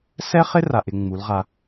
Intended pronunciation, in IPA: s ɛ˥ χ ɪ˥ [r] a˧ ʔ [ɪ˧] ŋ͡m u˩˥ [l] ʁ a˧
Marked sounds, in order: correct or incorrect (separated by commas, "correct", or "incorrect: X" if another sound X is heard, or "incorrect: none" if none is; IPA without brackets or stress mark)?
correct, correct, correct